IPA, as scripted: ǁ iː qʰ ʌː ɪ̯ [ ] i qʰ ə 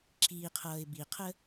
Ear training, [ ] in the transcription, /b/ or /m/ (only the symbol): b